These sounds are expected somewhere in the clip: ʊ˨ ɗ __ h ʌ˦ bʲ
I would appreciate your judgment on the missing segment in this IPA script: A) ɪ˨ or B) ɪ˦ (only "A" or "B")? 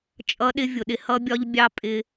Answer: B